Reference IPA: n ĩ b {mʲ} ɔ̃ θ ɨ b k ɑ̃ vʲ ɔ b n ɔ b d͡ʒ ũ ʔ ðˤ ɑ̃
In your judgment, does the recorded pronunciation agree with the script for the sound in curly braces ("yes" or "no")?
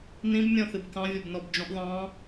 yes